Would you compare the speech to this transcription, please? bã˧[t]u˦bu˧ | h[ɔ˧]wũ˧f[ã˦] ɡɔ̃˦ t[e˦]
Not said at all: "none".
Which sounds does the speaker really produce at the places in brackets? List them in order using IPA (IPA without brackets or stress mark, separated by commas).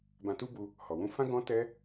t, ɔ˨, ã˦, ɛ˦